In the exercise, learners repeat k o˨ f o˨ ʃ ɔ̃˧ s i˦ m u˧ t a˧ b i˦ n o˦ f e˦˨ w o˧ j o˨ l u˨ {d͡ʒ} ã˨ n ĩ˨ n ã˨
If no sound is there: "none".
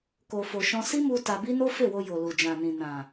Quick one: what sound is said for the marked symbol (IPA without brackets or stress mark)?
d͡ʒ